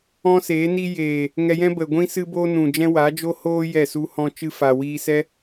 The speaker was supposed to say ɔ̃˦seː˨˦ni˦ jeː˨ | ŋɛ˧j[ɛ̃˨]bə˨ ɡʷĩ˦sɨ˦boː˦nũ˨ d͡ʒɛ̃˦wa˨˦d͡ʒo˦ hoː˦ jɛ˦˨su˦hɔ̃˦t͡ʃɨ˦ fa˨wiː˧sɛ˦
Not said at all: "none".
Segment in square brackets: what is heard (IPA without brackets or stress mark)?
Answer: ɛ̃˦